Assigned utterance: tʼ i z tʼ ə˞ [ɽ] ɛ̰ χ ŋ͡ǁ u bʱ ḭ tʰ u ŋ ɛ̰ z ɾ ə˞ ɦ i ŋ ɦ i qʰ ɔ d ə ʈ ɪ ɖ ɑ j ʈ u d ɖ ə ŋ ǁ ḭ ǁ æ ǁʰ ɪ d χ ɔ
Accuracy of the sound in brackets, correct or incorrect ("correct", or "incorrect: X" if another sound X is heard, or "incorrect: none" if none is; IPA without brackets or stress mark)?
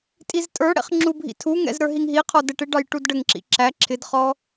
correct